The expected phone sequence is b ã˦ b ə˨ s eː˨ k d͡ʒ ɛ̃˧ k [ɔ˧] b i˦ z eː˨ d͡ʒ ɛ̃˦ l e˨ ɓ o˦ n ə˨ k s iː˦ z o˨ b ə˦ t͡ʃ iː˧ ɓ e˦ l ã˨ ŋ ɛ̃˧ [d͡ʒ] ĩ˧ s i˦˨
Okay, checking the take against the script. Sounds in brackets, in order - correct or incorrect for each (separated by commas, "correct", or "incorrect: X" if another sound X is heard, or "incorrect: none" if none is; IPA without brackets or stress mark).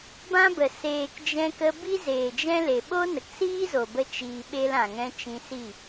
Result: incorrect: ə˧, incorrect: t͡ʃ